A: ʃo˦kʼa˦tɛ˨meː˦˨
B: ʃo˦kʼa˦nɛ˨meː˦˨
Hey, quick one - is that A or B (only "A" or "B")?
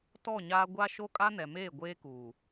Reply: B